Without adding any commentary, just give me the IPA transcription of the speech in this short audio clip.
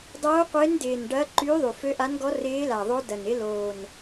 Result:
dˤ oː˧˥ qʷ ɪː˧˥ n d ɪː˨˩ n ɖ ɐː˧˥ ǃ yː˧˥ ðˤ y˨˩ f ø˧˥ ʔ a˧˥ n ɡ ɔ˧˥ r ɪː˧˥ l a˨˩ ðˤ o˧˥ d ɐ˨˩ n ɪ˧˥ l oː˨˩ n

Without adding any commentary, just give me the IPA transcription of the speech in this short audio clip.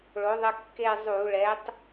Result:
ɭ o˨˥ ðˤ ə˦ kː e˦˨ zˤ u˧˩˧ ɭ ɛ˨˥ tˤ

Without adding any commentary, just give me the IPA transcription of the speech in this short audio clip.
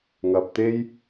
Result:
ŋ ɐ˨ p̚ t̪ e˥ j

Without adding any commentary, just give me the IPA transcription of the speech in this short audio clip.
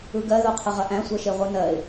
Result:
ɯ ɡ ɜ ð o qʰ ə ʁ ɐ ʔ æ̃ sʷ ɜ ʃ e ʁʷ ɯ n ɜ ɪ̯

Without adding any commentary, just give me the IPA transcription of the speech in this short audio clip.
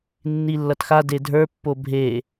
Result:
nː i lː ʌ t x a d e dʱ ə˞ pː o bʱ e

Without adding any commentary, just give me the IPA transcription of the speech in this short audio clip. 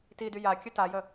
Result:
t i d y j a kʲ ə t a j ə

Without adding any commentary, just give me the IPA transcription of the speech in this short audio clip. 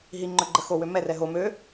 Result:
ɦ i ŋ͡ǃ œ ɡ͡ǃ ə x o w ø m ɛ r ɛ ɦ o m ø

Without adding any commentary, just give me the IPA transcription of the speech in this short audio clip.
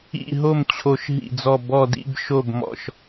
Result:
ḭ˥˨ ɦ o˥˨ m t͡ɕʰ o˧˩ ʃ ɦ ḭ˧˩ d͡z ɔ˧˩ b ɔ˧˩ d ḭ˥˨ b ʃ o˥˨ b m ɔ̰˧˩ ʃ

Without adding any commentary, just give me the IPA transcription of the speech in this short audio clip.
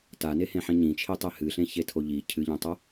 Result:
t a n e h ẽ ħ ĩ ɲ ĩ t͡ʃʰ i tˤ e h ɨ ɬ ẽ ç e tʰ o ʎ i cʰ ɨ ʎ ĩ tˤ o

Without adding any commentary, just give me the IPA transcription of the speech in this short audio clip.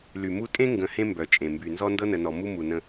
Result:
l y˨ m u˦ tʼ ẽ˦ ŋ ɡ ə̃˨ h ẽ˦ m b œ˨ t͡ʃʼ ẽ˨ m b y˨ n z ɔ˦ n d ɤ˦ n ə˨ n ɔ˨ m u˦ m u˨ n ə̃˦

